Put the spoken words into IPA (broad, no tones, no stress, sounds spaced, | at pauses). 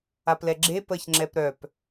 a p l ɛ ɡ͡ǁ e p ə ç ŋ͡ǁ ɛ p ɾ œ p